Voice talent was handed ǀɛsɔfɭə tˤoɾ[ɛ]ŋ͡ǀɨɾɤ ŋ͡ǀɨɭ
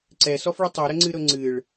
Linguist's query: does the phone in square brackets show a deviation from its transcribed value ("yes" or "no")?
yes